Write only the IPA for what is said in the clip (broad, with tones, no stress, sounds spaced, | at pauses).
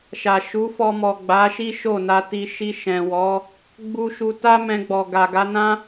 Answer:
ʃ a˨ ʃ u˨˦ f ɔ˧ m ɔ˨ ɡ͡b a˨˦ ʃ i˦ ʃ o˦˨ n a˧ t i˧ ʃ i˧ ʃ ɛ̃˨ w ɔ˨˦ | ɡ͡b u˧ ʃ u˧ t a˦ m ɛ̃˧ ɡ͡b ɔ˨ ɡ a˨ ɡ a˨˦ n ã˦